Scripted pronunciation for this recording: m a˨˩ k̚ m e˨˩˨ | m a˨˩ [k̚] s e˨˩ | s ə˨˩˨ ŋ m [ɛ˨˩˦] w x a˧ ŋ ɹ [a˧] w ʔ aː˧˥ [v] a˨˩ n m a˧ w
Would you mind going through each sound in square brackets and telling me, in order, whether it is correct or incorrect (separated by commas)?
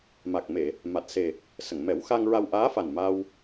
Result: incorrect, correct, correct, incorrect